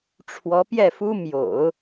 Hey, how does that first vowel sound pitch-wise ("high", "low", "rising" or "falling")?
rising